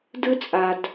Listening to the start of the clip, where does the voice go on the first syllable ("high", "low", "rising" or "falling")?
high